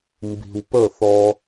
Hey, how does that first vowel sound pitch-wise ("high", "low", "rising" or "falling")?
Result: low